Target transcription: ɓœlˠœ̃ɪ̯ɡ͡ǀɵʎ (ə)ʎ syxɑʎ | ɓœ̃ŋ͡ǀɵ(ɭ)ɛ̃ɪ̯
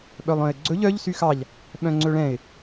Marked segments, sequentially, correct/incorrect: incorrect: œ, correct

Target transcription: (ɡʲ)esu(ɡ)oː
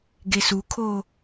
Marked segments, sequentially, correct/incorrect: incorrect: ɡ, incorrect: kʰ

